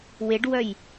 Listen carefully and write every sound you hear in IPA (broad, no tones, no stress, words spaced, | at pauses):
weɖwœj